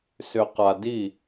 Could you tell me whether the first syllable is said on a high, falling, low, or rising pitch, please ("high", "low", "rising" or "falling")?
low